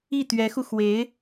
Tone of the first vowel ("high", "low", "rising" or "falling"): falling